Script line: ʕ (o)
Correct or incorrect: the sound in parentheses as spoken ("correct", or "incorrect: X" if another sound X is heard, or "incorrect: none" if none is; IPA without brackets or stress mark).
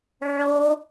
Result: correct